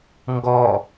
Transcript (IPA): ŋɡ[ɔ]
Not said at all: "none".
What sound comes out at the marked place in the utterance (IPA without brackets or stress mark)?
ɔ